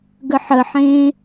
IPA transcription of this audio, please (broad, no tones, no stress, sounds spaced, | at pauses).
ɡ ə ħ ə ħ ẽ